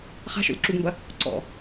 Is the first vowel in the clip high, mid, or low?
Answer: low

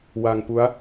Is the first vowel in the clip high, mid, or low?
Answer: low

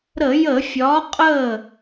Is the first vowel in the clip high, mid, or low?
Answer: mid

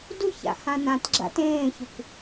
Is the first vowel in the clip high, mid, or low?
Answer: high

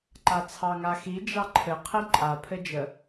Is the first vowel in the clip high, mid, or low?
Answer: low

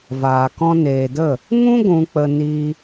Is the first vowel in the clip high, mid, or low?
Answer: low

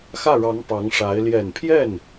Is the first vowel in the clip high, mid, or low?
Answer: low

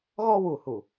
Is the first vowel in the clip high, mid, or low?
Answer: mid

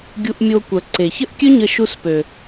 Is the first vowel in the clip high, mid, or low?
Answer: high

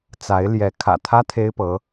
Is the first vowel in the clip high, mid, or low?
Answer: low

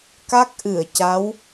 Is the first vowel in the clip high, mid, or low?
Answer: low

